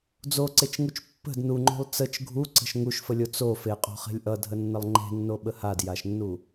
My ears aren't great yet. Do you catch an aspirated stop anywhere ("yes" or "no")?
no